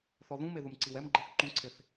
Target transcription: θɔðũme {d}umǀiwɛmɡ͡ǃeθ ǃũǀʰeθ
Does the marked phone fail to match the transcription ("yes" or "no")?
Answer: yes